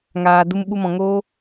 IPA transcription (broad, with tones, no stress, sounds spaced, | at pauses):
ŋ aː˨ d u˧ m ɓ u˧ m ɔ̃˨ ŋ oː˧